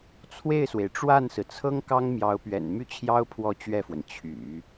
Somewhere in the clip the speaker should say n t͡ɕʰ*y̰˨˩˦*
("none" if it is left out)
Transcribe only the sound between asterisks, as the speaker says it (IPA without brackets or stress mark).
y̰˨˩˦